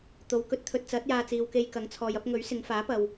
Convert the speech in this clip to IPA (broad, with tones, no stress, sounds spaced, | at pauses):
t̪ o˨˧ w k ɵ˧ t̚ t̪ʰ ɵ˧ t̚ t͡s ɐ˨˥ t̚ j aː˧ t͡s iː˨ w k e˧ j k ɐ˨˥ ŋ t͡sʰ ɔː˨ j ɐ˥ p̚ ŋ ɵ˨˥ ɥ s ɪ˨˧ ŋ f aː˨˥ p ɐ˨ w